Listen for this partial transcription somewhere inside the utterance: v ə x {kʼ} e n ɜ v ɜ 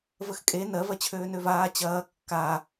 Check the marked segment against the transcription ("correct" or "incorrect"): correct